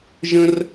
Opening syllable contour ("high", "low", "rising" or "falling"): high